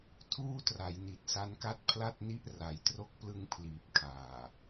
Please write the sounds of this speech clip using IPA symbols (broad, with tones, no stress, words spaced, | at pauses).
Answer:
tʰuː˥˩tra˩˦jni˨˩t̚ sa˦˥nka˥˩t̚pʰla˥˩t̚ni˥˩ʔ ra˩˦j tro˦˥k̚plɯ˧ŋ pʰliː˨˩p̚kʰaː˨˩